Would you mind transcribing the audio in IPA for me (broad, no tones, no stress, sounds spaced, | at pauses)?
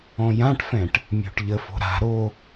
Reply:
ɔ̃ j ã ʈ f ɛ̃ ʈ | mʲ o̤ ʈ ʎ ə f o̤ ɾ a̤ ɾ o